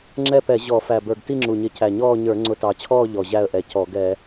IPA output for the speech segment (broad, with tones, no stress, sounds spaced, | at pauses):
ŋ͡ǁ ɛ˥˧ p ɛ˧˩˧ ʑ ɔ˧˩˧ f æ˨˩ b ə˞˨˩ ɡ t i˥˧ ŋ͡ǁ u˨˩ ɲ ɪ˧˩˧ c æ˨˩ ɲ ɔː˥˧ ɲ ə˞˧˩˧ ŋ͡ǀ ʊ˧˩˧ t ɑ˨˩ t͡ɕʰ ɔː˥˧ ʎ ɔ˨˩ ʑ æ˥˧ ə̯ ʔ ɛ˨˩ c ɔ˧˩˧ ɡ ɛ˧˩˧